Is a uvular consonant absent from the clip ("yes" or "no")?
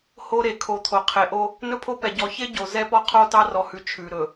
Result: no